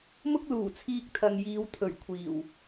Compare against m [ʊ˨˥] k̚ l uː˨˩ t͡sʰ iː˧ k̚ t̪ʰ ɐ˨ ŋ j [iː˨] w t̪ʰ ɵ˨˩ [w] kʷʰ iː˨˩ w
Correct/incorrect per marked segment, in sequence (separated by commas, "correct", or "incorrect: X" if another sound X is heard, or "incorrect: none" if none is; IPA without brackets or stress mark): incorrect: ʊ˥, incorrect: iː˨˧, incorrect: ɥ